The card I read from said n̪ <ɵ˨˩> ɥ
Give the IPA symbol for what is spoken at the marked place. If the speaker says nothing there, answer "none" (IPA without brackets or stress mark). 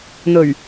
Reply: ɵ˨˩